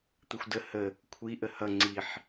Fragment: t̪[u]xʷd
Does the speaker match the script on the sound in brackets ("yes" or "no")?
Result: no